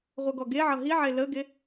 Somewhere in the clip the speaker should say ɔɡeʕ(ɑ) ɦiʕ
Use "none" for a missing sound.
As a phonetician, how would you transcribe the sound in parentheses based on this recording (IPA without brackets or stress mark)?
ʌ